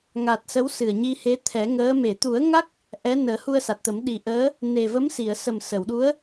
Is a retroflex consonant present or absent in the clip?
absent